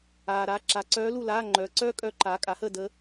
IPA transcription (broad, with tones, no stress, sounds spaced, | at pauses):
aː˨ ɾ aː˧˥ ǁ a˨ ǀ œː˧˥ l u˦˨ l aː˧˥˧ ŋ͡ǃ œː˨ ǀ œː˥ kʼ œ˧˥ ǃ aː˩˥ kʼ a˩˥ h ə˦˨ d əː˧˥